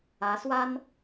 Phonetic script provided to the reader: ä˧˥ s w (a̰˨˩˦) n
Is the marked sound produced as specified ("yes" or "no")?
no